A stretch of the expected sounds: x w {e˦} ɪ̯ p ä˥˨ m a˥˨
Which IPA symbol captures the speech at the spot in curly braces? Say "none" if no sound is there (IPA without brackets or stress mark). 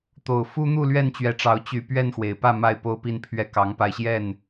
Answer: e˨˩